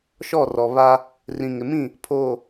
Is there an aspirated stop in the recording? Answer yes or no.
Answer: yes